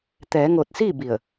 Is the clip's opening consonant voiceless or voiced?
voiceless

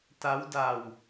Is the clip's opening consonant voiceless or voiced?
voiceless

